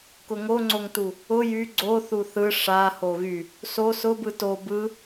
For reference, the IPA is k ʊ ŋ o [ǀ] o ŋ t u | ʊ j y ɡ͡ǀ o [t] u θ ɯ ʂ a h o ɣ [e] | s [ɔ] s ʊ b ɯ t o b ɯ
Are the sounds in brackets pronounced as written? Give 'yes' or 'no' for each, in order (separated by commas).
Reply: no, no, no, no